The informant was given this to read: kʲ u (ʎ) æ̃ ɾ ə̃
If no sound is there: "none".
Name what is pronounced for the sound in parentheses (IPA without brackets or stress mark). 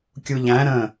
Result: ʎ